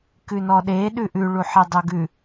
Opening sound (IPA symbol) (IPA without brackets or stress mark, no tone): k